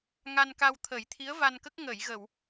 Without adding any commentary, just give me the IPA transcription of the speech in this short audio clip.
ŋa˧nka˧wt̪ʰə˨˩˦j t̪ʰi˧˥ə̯va˧nkə˦˥k̚ ŋə˨˩˨jɣə˨˩˨w

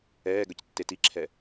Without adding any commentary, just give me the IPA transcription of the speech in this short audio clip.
ɛːɡœctːe tiǁʰɛ

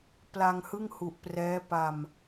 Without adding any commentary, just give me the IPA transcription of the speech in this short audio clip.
pla˧ŋhɯ˥˩ŋhu˨˩ʔ prɛː˦˥pa˧m

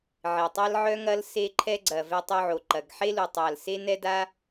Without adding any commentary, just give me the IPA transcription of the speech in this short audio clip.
ʕɪ˨˩tˤa˥lʕœ˥ŋɐ˥l se˥ǃʰɛ˥ɡ͡ǀɐ˨˩ vɛ˥tˤo˥ʕo˨˩ǃɐ˨˩ɡ ħe˥lu˨˩tˤa˨˩l se˥nɛ˥ da˥

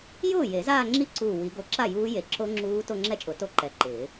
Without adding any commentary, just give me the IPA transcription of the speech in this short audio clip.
jʊː˥˩je˨˩˦ zaː˥˧ŋ͡ǁi˦˥ǀuː˧˩ wi˨˩˦ ɡo˧˩ǁa˥˩ juː˦˥ je˧˩ǁo˦˥ ŋ͡ǁuː˦˥ to˥˧ŋ͡ǁɛ˥˧t͡ʃʼʊ˨˩˦ to˥˧ǃɛ˧˩ǃɪː˨˩˦

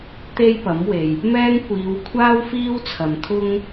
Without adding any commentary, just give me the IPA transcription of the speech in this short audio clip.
t̪e˥jpɐ˨˥mwe˨j | mɛː˥ŋ kʷiː˨˧wkʷʰaː˥w fiː˥wt͡sʰɐ˨mt̪ʰʊ˥ŋ

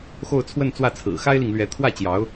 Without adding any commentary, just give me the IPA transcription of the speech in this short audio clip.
xo˥˧ʊ̯t͡sʰwə˥˧nt͡swä˥˩t͡sʰɹ̩˨˩ xa˥ɪ̯li˨ŋlɥɛ˧˥ t̪ʰwä˥˩t͡ɕjɑ˧˥ʊ̯

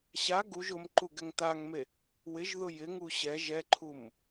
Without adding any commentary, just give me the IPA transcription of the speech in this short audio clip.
ɕa ɡuʒ ʊmǃu ɡɛŋtaŋme | wɪʒ ðʊjɪ ŋuɕɛ ʒɛǃʰum

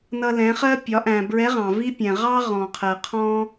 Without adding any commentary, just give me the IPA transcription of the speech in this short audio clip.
nʌ˧lɛ̃˩˧χɜ˥ pʲɒ˩˧ʔæ̃˩bɹɛ˧˥ ʁɑ̃˩ vi˥pʲɛ̃˩ ʁɑ˥ ʁɔ̃˩qʰɜ˩qʰɔ̃˥

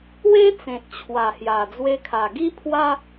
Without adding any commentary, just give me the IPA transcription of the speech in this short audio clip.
we˦ t͡sẽ˨t̚t͡ɕʰwa˨˩hja˨˩ d͡zwe˧kʰa˨˩ɡi˦pʰwa˦

